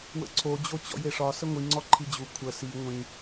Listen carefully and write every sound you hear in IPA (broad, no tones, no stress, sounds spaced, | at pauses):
w ə̰ ǀʰ o d͡ʑ o t͡ɕ ɔ̰ j e ʂ ɒ s ə ŋʷ i ŋ͡ǀ ɔ ǃʰ i d͡ʑ u kʷʰ ə s i ŋʷ ĩ